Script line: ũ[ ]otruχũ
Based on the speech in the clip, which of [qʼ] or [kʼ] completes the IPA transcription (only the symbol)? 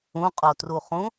qʼ